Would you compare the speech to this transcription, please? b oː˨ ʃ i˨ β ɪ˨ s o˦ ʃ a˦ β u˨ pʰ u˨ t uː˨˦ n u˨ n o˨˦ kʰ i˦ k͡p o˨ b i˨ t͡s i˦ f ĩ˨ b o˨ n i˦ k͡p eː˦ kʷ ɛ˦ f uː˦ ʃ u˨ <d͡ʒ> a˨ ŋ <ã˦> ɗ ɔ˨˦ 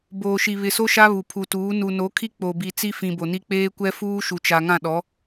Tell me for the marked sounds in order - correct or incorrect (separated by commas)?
incorrect, incorrect